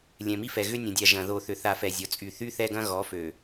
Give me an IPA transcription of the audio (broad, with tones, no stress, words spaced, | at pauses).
lʲɛ̃˨mi˦fɛ˨ ɣʏ˦nʲɐ̃˨dʲa˨ ʒɐ̃˨ ðo˨θʏ˨θa˨ fɛ˨ zʲɔ˨t͡sʼy˨ θy˦θɛ˦ɡɐ̃˦ ɣɔ˨˦fø˨